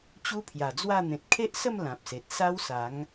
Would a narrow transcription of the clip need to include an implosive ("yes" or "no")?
no